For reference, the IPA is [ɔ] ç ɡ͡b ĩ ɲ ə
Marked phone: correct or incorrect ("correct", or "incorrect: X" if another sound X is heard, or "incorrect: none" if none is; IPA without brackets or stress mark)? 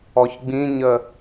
correct